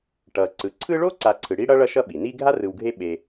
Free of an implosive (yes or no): no